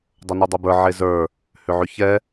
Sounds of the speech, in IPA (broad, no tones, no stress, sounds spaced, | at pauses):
dˤ ʊ n u dˤ ʏ b ə˞ ʕ e z ə˞ | h ʏ ʕ ʏ ç ɛ